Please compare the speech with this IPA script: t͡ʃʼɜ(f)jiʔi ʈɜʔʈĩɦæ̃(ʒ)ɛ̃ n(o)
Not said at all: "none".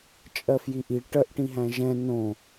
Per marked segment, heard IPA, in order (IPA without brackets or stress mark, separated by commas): f, ʒ, õ